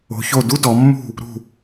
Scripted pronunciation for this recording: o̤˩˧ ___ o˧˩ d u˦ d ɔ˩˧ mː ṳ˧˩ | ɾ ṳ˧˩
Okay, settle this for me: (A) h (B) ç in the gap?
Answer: B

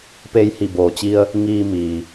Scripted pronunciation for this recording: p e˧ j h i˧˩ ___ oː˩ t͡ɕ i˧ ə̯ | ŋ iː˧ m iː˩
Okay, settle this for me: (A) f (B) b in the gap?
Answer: B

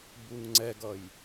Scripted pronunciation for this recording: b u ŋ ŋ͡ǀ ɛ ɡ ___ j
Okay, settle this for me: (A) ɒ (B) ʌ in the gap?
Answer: B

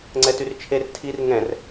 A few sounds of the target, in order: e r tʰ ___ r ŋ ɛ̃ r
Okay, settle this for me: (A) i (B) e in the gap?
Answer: A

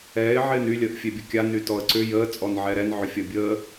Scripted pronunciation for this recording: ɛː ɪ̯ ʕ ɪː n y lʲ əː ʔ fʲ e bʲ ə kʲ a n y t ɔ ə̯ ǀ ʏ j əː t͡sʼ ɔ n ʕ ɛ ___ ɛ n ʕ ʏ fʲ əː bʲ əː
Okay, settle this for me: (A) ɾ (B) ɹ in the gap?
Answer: A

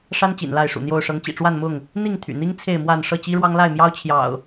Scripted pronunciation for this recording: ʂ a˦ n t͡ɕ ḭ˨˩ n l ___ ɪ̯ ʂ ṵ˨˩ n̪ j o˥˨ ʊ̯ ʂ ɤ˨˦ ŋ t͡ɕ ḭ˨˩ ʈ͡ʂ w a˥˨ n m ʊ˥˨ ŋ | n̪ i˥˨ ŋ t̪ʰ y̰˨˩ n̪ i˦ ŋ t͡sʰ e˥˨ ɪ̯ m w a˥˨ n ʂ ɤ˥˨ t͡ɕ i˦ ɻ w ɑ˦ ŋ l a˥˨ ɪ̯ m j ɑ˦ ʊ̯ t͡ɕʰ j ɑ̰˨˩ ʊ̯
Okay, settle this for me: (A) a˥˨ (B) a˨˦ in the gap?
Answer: A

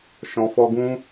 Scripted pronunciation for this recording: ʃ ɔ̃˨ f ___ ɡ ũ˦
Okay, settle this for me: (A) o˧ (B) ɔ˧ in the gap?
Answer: B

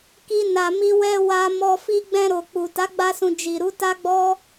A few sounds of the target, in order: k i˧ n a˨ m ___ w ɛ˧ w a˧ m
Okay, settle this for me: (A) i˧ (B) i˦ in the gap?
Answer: A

